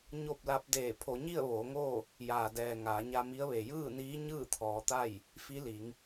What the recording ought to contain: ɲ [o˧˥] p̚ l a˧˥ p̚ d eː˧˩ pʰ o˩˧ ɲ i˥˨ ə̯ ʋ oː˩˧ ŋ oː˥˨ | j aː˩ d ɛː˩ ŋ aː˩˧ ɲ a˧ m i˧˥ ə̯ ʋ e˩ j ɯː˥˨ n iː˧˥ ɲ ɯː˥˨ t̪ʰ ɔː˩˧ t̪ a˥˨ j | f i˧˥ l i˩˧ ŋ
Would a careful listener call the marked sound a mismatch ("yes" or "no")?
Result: yes